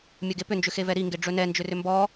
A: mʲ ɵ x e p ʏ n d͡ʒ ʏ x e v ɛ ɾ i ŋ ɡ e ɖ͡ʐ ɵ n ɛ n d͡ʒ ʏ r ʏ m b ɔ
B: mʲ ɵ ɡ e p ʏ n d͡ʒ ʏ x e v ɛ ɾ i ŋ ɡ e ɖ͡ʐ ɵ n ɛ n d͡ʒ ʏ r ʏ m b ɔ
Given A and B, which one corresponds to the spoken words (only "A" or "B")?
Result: B